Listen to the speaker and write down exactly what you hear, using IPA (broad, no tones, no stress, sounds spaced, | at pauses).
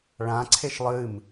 ɭ ã ǀʰ e ʃ lˠ ɨ m